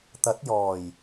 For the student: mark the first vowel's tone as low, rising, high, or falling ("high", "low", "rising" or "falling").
rising